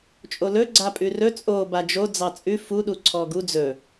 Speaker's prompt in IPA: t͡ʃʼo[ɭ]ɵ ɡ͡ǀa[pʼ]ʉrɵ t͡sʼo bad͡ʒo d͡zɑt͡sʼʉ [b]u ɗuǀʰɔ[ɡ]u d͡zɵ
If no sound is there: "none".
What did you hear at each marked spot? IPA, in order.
l, pʼ, f, ɡ

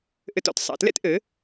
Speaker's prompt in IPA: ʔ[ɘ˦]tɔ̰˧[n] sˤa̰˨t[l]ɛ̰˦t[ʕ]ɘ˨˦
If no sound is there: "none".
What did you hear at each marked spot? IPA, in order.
ɘ˧, t, l, ʔ

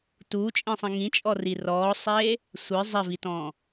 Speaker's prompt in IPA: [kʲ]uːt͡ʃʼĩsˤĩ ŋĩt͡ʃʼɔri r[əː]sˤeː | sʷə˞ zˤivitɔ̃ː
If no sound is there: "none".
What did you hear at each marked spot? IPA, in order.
t, ɔː

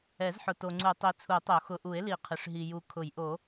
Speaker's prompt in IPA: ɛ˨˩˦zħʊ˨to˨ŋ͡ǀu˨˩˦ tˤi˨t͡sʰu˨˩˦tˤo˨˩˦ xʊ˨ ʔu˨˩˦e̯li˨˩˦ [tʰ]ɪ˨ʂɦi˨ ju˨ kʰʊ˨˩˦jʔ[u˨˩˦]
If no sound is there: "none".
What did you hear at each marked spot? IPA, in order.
qʰ, o˨˩˦

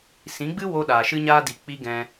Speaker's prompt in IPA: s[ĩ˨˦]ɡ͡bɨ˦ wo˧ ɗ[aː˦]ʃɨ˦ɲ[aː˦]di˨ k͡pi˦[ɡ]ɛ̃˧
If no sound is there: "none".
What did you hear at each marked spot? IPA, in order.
ĩ˨˦, aː˨, aː˦, ɡ

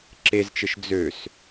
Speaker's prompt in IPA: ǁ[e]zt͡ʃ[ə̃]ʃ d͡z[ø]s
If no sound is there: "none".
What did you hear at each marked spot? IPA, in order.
e, ə, ø

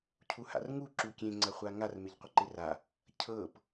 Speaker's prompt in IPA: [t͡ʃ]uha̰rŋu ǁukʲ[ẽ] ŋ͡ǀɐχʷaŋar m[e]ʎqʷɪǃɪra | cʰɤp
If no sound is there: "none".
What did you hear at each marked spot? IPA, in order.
cʰ, ẽ, e

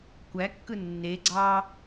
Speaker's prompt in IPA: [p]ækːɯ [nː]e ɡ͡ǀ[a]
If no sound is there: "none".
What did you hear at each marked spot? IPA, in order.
kʷ, nː, ɑ

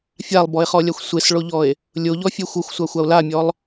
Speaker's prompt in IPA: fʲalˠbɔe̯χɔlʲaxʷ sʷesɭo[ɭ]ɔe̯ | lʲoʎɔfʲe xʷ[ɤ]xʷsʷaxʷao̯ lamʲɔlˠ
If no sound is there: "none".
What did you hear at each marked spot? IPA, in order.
ʎ, ɤ

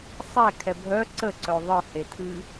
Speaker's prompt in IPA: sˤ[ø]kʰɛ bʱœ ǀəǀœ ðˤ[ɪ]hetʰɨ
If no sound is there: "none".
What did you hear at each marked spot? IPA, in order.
ɛ, ɨ

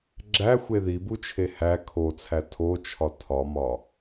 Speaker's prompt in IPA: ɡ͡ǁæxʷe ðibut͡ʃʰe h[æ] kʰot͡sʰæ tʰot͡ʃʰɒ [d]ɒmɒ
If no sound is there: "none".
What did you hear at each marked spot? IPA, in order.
æ, tʰ

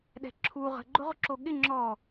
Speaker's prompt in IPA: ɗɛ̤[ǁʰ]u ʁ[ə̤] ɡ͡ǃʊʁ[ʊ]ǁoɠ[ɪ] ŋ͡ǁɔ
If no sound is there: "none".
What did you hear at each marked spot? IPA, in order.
ǁʰ, ə̤, ʊ, ɪ

